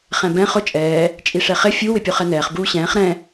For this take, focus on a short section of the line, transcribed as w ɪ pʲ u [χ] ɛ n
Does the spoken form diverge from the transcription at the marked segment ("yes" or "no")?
no